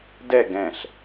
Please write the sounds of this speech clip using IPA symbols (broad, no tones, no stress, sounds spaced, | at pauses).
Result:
d ɛ ɡ ɛ̃ ɬ